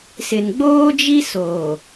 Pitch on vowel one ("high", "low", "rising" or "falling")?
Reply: low